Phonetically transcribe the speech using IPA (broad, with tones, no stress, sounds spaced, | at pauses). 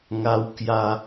ŋ a˦ w k j a˦